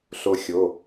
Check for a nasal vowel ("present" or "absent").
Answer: absent